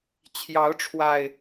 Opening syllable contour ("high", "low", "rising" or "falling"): rising